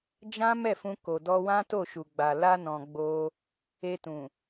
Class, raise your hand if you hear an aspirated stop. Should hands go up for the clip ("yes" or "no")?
no